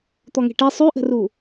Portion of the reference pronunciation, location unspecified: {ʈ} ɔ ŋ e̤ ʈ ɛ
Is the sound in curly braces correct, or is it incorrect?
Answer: incorrect: t̪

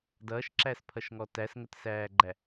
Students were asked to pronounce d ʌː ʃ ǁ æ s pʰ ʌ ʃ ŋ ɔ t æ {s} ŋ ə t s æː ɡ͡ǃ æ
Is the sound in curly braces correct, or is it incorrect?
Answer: correct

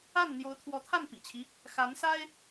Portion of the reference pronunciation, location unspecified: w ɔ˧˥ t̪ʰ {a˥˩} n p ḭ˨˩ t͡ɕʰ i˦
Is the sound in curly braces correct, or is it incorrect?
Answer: correct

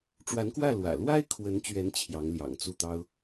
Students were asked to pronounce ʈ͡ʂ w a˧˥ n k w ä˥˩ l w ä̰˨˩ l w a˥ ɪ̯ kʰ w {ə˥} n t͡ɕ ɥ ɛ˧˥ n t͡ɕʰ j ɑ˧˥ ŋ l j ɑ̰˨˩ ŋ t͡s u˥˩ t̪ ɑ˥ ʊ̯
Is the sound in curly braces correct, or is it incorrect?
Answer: incorrect: ə˧˥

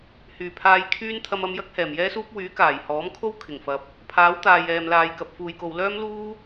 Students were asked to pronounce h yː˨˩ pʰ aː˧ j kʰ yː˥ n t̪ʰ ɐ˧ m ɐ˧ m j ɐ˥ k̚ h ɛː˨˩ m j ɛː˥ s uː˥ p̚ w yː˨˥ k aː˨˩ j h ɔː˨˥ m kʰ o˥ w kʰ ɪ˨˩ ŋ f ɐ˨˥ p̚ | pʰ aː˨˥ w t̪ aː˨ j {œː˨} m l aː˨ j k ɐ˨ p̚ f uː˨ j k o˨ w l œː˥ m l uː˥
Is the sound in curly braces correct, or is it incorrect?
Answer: incorrect: ɛː˨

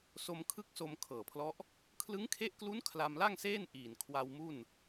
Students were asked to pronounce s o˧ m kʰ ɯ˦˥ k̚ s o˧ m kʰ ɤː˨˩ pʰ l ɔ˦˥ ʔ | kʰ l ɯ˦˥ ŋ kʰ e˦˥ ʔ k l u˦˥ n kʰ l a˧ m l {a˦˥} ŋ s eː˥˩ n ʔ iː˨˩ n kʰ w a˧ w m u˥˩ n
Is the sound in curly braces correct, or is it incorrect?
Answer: incorrect: a˥˩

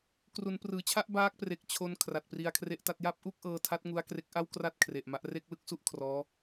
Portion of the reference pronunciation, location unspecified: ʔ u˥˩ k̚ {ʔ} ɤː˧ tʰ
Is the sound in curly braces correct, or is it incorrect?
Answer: correct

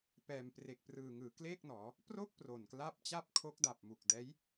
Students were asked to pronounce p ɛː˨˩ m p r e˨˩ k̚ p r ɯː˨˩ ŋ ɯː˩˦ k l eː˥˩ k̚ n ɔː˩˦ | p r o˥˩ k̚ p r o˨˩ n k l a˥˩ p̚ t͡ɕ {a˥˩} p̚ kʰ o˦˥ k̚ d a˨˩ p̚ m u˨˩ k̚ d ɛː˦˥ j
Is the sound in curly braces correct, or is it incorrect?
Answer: correct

